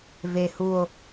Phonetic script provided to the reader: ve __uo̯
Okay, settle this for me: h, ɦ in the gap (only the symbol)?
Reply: h